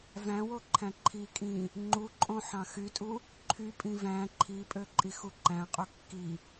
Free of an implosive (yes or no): yes